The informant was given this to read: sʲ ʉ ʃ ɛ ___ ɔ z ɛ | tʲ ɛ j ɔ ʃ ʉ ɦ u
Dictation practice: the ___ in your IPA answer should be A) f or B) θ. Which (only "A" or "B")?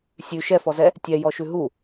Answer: A